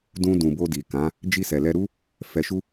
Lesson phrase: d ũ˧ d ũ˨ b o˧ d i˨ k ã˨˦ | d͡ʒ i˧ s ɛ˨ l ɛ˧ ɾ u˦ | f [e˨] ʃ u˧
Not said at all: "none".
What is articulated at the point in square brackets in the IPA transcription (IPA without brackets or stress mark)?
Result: ɛ˨